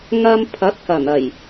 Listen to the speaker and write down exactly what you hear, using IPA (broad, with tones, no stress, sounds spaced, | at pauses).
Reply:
ŋ ɐ˧ m pʰ ɐ˨˥ t̚ k ɐ˨˩ n ɐ˨˩ j